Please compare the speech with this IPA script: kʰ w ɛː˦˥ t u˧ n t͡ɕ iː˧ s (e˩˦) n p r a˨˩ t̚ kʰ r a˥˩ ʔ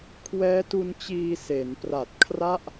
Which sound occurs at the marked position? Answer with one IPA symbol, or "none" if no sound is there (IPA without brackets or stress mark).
e˩˦